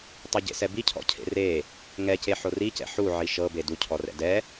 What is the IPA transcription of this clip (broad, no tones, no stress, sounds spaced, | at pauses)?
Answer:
tˤ ɤ ɟ ḛ s ɛ b i cʰ ɔ̰ cʰ ḛ r e | ŋ ɛ c e ħ o r i c ɛ̰ ħ u ʕ i ʃ ɤ b e d u cʰ ɔ r ɛ̰ d ɛ